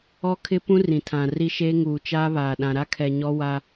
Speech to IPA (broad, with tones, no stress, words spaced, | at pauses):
ɔ˦kʰɪ˦pũ˦ rĩ˨tʰã˨ri˦ʃeː˦ ŋuː˨t͡ʃaː˦ βaː˨ɗã˨ ɾa˦kʰɛ˨ ɲɔ˦ wa˦